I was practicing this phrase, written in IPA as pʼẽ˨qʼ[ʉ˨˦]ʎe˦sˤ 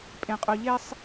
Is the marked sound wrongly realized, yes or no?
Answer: yes